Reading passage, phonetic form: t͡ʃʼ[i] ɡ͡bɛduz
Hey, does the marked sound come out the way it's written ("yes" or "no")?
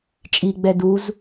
yes